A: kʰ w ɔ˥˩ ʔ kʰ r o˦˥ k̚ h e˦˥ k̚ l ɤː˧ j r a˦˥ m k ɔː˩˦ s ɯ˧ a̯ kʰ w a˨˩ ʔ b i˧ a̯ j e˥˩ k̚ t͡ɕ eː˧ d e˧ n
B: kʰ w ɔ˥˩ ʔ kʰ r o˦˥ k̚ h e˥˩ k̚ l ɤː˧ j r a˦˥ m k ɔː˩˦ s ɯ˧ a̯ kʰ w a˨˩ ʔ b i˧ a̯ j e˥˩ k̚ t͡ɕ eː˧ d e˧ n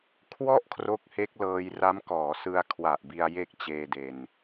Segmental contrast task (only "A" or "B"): A